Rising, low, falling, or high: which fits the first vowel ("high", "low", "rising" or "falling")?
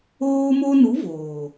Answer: high